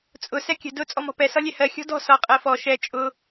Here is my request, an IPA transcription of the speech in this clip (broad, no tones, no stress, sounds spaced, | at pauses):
t͡sʼ ʊ s ɛ kʲ ə̤ d ʊ t͡sʼ ɔ m ɔ̤ p ɛ s ɒ lʲ ɛ h ɜ xʲ ɔ̤ d ɔ̤ s ɒ qʼ ɜ f ɔ ʃ ɛ t͡ʃʼ ʊ